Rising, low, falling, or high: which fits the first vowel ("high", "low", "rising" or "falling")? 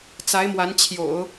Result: rising